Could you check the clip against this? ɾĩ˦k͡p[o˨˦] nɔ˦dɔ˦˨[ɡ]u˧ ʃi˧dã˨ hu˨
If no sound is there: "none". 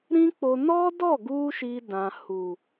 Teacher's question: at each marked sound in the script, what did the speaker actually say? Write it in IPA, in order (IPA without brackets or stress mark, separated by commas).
o˧, ɡ